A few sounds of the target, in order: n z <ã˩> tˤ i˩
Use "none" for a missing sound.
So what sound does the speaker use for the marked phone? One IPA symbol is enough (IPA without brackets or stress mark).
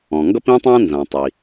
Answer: ã˩